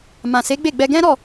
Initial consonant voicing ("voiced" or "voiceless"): voiced